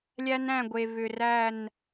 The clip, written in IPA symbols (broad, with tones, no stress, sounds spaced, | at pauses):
lʲ æ˦ n æ̃˦˨ ɡʷ e˨ v ʏ˨ r æ˦˨ n